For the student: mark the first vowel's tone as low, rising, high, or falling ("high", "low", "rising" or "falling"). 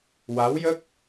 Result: rising